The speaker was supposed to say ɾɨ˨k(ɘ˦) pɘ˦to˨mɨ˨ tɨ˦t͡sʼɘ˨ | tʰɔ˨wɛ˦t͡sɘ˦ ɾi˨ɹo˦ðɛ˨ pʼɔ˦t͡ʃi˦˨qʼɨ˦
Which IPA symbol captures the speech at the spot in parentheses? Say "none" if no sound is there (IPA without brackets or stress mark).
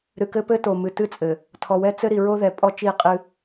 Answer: ɘ˦